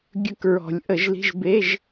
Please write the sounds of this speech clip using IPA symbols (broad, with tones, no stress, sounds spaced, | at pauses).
ɡʲ ɵ˧ k ɹ ɔ̤˨˩˦ lʲ ʔ ə˨˩˦ ʒ l i̤˧˥˧ ʒ b e˧˥˧ ʒ